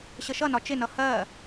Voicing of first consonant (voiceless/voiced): voiceless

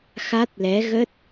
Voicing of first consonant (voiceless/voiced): voiceless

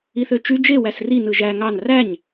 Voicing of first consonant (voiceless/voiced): voiceless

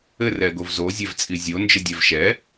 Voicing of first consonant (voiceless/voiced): voiced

